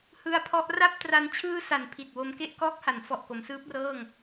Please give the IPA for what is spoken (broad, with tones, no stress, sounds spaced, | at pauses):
h ɯ˧ a̯ pʰ ɔ˦˥ ʔ r a˥˩ p̚ t r a˧ n t͡ɕʰ ɯː˧ s a˩˦ n pʰ i˨˩ t̚ w o˧ m k e˥˩ ʔ k ɔː˦˥ k̚ h a˩˦ n f ɔ˨˩ ʔ k o˩˦ m s ɯː˦˥ p̚ r ɤː˥˩ ŋ